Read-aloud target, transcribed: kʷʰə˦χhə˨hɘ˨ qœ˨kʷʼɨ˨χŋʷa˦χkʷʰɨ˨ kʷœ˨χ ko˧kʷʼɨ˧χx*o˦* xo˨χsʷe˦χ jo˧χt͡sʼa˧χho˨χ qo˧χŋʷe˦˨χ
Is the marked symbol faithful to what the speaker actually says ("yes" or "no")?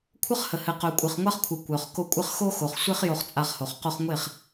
yes